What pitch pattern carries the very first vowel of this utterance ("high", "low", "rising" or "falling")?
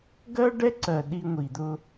high